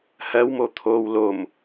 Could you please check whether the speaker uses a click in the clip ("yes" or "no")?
no